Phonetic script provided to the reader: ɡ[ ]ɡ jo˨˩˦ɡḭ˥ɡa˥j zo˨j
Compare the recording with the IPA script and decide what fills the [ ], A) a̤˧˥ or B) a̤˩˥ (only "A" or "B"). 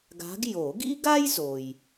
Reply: A